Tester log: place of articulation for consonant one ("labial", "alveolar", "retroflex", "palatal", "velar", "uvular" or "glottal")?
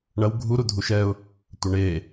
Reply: retroflex